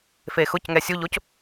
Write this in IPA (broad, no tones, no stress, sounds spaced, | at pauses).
f e x ʊ c ŋ ɛ sʲ u ʎ o c